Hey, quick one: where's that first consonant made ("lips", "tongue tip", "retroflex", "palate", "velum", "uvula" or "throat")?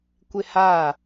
velum